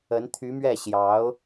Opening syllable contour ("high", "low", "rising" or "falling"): rising